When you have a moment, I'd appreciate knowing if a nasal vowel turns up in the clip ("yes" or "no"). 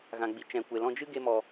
yes